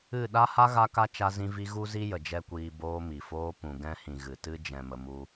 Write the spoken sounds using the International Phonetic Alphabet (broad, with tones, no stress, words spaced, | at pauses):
ɨ˦˨ ɗa˦ha˦ ɣa˦ka˦ t͡ʃa˧zĩ˧vi˧ ɣu˦zi˦jə˨ d͡ʒɛ˦kʷiː˧ boː˧mi˨foː˧ pũ˨ɡɛ̃˦hĩ˨ ɣɨ˨tɨ˦ d͡ʒɛ̃˨ mə˧mu˦